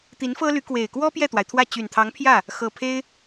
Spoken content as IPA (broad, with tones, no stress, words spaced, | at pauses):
t̪i˧˥nfɤ˥ly˧˥kwe˨˩ɪ̯ kwɔ˥ pjɛ˥˩t̪wa˩ɪ̯t̪ʰwä˥˩ t͡ɕy˨˩nt̪ʰɑ˧˥ŋpʰjä˥˩ | xɤ˨˩pʰe˥ɪ̯